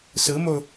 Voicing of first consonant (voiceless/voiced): voiceless